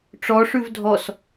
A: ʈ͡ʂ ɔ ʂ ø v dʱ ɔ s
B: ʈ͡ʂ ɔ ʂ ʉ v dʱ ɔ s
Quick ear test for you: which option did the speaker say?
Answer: B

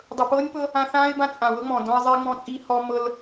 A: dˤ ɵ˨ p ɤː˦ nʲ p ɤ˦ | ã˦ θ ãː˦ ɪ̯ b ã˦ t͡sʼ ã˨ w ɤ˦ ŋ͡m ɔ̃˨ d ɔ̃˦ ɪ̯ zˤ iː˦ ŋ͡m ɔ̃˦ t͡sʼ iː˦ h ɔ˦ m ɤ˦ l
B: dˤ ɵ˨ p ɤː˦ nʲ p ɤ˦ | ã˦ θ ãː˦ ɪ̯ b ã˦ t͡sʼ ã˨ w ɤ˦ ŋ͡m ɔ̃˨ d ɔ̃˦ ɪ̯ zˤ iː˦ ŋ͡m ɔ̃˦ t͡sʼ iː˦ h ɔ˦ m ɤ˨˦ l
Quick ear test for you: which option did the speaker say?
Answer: A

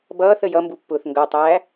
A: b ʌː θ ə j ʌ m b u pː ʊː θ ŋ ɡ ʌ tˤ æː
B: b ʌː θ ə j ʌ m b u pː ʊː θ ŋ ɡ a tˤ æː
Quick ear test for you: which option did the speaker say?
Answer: A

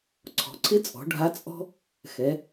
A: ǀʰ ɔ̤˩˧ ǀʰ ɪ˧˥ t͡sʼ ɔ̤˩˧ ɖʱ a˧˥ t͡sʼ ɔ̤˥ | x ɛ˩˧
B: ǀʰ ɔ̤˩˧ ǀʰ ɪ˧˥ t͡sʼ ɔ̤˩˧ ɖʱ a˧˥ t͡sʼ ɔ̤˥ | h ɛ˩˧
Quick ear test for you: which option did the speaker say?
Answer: A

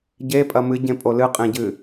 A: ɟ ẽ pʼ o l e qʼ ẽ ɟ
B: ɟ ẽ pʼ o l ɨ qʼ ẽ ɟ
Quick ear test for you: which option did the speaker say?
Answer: B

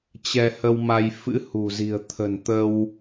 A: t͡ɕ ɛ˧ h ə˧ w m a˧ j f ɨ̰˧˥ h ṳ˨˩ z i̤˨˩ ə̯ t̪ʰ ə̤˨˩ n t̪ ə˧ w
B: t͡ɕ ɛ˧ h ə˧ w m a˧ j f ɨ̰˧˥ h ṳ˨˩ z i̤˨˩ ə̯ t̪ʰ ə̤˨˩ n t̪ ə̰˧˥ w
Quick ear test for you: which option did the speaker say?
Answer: A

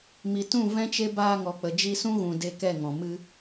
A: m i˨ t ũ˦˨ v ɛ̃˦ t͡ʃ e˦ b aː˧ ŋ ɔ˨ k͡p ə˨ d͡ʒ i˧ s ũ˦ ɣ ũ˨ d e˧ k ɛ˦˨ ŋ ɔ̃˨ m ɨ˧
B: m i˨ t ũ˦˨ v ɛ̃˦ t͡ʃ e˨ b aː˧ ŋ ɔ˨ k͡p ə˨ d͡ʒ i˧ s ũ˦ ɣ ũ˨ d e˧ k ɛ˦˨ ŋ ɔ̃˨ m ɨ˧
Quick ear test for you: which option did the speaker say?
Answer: A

